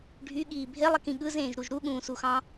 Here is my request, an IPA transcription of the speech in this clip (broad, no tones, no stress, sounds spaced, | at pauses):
ɖʱ y ɠ iː bʱ e lˠ i k ĩ ɠ ɯ z ẽː ʒ ɾ u ʒ ɾ u ɠ ũː s u x ɑ̃